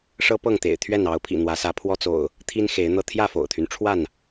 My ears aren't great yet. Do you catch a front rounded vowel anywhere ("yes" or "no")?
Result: yes